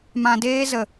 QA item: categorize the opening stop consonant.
plain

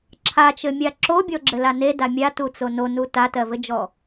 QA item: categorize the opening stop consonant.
click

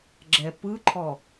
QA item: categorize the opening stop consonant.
click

